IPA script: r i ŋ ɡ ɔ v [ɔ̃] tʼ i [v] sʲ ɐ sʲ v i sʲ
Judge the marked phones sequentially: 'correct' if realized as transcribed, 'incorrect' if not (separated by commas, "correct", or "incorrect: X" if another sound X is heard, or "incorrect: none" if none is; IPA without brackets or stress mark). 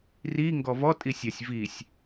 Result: incorrect: ɔ, incorrect: none